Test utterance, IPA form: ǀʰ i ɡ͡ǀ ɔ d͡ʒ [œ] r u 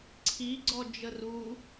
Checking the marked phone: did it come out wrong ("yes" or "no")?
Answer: yes